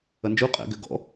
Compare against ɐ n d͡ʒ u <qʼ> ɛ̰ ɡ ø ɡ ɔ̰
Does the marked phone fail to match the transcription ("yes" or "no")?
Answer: no